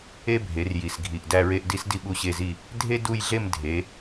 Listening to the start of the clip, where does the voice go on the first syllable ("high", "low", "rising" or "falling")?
high